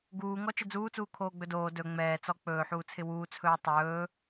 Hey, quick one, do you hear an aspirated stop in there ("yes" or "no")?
yes